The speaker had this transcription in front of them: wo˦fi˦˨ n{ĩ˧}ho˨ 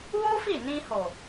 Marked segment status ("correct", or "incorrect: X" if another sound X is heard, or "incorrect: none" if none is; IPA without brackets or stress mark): correct